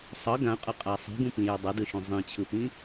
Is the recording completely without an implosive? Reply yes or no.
yes